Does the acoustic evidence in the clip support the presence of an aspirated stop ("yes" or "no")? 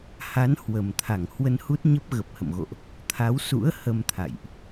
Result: yes